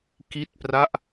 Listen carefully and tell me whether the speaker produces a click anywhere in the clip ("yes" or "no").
no